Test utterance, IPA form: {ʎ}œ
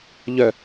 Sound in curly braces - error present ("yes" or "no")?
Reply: no